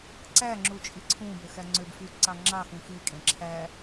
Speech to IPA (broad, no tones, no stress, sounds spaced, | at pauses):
ǀ æ ŋ͡ǁ u t͡ʃʼ i ǀʰ ũ b ø x æ ŋ͡ǀ ø b f y ǀ ɑ ŋ͡ǁ ɑ x ũ x i kʼ ẽ ǁʰ æ